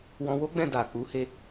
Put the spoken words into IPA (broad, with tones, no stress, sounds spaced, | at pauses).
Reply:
w ɔ̃˧ w o˦ ɡ͡b ɛ̃˦˨ d a˨ k͡p u˨˦ h e˧